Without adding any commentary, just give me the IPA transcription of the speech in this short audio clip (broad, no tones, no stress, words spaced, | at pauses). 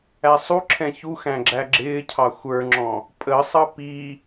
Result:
æsˤuǁʰɛ̃ çuxæ̃ ɡ͡ǁæɡ͡ǁɪːcʰɑ xʷə˞ŋ͡ǁɔ̃ | pʼəsˤʌ pi